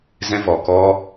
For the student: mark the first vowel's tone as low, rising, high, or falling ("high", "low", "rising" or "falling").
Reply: high